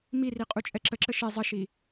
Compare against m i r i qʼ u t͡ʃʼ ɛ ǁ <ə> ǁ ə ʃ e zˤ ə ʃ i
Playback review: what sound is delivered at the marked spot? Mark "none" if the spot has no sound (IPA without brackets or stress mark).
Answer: ə